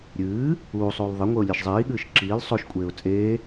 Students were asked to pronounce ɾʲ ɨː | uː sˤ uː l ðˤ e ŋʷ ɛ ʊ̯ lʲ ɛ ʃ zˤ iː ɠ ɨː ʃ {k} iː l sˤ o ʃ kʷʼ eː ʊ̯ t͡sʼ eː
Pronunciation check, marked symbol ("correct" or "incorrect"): incorrect